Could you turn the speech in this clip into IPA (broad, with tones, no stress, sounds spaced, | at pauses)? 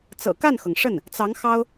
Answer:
t͡s ɤ̰˨˩ k a˥˩ n x ɤ˩ ŋ ʂ ə˥˩ n | t͡s ɑ˧˥ ŋ x ɑ˥ ʊ̯